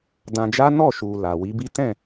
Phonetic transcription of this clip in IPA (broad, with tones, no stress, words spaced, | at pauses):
dã˧d͡ʒa˦ nɔ˦˨ʃu˨ la˨wi˨˦bi˦ tɛ̃˦˨